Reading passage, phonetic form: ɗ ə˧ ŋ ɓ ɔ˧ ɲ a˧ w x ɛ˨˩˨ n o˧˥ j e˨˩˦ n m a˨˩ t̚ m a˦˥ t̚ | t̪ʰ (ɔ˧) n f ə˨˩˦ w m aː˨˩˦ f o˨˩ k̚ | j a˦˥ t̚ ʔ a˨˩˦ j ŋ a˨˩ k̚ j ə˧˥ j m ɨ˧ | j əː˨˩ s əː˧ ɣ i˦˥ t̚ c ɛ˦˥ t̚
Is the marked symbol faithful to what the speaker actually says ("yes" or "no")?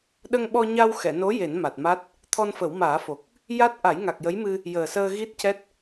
yes